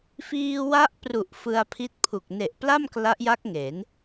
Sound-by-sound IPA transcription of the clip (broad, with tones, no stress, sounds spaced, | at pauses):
f iː˧ w a˦˥ ʔ p r u˨˩ ʔ f ɯ˧ a̯ pʰ i˦˥ t̚ pʰ u˨˩ k̚ n e˨˩ ʔ p l a˥˩ m k l a˦˥ ʔ j a˦˥ k̚ ŋ e˩˦ n